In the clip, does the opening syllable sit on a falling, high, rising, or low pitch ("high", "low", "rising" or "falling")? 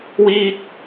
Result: high